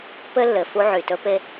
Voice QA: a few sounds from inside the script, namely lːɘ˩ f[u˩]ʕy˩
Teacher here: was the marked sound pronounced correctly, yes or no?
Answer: no